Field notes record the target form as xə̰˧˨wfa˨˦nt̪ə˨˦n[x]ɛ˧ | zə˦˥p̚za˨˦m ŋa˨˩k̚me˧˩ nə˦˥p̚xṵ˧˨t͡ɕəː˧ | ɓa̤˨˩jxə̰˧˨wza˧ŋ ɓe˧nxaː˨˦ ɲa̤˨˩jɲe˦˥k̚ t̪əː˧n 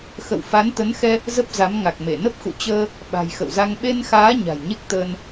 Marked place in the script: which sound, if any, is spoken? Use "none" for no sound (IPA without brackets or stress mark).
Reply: x